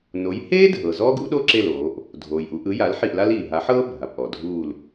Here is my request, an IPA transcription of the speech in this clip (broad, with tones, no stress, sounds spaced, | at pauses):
n o˨˥ j h eː˥ dʱ ɤ˩ z ɔː˥ ɡ ṵ˥ ɗ o˥ ǁ e˦˨ l oː˩˧ ʔ | dʱ oː˩ j ʔ u˩˧ ʔ ɯ˨˥ j a˨˥ l ħ i˦˨ ʔ l a˥ l iː˩ ɦ a˨˥ ħ ɤː˥ bʱ a˩ p ʔ ɔ˩ dʱ uː˦˨ l